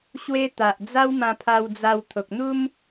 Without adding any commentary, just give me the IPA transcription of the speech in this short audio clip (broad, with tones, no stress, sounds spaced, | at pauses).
ɕ w e˦ t̪ a˨ ʔ d͡z a˦ w m ã˧ pʰ a˧ w d͡z a˧ w t̪ʰ o˨ k̚ n̪ u˦ m